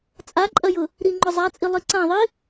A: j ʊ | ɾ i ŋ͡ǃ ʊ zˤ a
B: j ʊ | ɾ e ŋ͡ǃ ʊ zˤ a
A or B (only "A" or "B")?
A